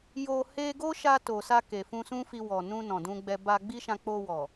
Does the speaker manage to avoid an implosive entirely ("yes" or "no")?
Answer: yes